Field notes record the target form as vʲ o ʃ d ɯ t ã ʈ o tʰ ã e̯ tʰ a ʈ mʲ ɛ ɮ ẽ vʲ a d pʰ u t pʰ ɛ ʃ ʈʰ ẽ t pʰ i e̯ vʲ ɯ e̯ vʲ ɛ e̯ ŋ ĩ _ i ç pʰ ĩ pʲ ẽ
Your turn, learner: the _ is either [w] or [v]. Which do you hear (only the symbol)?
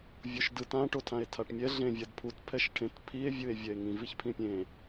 v